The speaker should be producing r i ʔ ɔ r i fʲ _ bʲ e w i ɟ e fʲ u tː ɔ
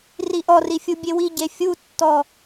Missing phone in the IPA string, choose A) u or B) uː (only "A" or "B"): A